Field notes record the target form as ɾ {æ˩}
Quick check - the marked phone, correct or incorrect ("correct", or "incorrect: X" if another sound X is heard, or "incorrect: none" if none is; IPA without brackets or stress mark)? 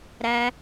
correct